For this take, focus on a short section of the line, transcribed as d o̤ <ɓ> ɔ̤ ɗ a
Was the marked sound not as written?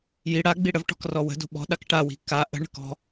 no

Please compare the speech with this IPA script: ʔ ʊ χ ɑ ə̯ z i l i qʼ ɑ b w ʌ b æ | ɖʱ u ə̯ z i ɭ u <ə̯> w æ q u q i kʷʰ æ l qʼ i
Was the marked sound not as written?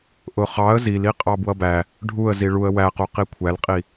no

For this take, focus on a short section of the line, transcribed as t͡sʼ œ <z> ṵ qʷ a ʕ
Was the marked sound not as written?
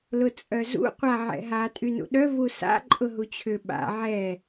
no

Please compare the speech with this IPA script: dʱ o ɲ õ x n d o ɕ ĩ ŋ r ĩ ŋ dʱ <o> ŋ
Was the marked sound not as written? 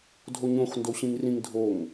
no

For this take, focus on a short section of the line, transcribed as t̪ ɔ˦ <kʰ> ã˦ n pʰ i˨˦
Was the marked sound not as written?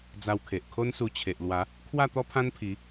yes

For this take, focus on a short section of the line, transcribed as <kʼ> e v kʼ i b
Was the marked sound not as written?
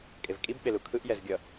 no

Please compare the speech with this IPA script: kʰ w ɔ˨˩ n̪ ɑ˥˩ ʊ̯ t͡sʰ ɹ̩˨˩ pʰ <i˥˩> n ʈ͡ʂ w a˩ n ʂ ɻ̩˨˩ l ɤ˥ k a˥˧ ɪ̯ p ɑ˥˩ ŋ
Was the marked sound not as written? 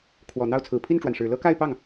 no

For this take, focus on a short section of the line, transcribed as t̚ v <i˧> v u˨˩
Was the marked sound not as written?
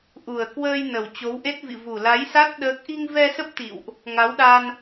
yes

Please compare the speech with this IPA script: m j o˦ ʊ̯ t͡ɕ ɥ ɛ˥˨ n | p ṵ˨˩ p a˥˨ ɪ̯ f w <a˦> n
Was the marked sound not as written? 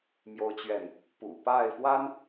no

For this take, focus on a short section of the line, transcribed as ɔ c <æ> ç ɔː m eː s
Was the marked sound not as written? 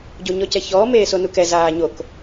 yes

